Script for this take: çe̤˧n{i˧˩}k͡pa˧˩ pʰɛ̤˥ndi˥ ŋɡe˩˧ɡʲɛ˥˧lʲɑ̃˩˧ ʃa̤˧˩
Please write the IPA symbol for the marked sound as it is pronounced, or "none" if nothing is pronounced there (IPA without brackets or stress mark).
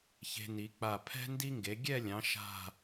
i˩˧